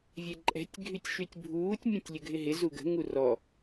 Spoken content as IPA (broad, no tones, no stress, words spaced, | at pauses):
vʲɛǃʼɛ̤tʲ ɡʱytʲʃytʲbʱuːtʲ mʲœ̃tʲlʲəɡʱɪɦɪ zuɡə̤ ŋurɔ